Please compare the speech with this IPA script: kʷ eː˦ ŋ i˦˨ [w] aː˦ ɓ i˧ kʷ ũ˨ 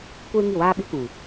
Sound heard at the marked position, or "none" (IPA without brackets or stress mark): w